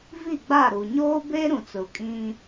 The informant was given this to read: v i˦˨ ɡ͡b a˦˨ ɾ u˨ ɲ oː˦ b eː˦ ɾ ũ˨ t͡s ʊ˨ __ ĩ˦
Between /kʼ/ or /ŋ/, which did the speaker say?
kʼ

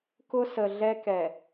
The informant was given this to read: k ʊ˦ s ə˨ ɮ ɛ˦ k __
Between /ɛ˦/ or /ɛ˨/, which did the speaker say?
ɛ˨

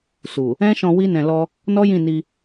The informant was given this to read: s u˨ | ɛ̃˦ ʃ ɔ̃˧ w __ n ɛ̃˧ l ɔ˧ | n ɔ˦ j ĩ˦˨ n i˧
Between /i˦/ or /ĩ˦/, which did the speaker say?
i˦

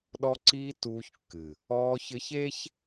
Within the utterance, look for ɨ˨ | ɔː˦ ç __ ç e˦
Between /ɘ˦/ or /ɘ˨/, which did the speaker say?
ɘ˦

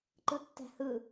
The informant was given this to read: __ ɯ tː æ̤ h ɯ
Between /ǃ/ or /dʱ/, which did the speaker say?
ǃ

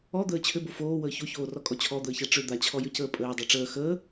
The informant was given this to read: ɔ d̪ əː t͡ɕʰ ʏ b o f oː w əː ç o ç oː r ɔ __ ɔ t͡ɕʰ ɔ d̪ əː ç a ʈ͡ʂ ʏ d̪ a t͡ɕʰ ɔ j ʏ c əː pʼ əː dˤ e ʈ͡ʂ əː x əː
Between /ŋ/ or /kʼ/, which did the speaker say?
kʼ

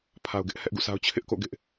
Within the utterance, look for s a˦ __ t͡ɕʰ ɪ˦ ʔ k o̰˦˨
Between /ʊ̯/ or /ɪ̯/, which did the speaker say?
ʊ̯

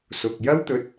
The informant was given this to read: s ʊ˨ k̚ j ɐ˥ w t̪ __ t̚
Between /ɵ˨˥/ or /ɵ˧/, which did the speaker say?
ɵ˧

